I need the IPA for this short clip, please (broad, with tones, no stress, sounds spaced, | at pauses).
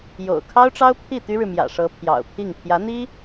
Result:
j o̰˨˩ ʊ̯ kʰ ɑ˥ ʊ̯ ʈ͡ʂ ɑ˥ ʊ̯ pʰ i˥˩ t̪ y˥ ɻ ɻ̩˨ m j ä̰˨˩ ʂ ɤ˧˥ pʰ j ɑ̰˨˩ ʊ̯ pʰ i˥˩ ŋ pʰ j ä˧˥ n̪ i˥